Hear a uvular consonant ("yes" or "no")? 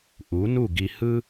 no